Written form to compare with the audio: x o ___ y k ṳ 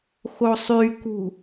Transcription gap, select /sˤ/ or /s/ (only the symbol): sˤ